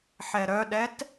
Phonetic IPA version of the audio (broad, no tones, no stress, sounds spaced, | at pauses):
ħ ɛ ɾ œ ɗ ɛ t